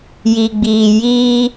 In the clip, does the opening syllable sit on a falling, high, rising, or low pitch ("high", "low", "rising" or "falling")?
low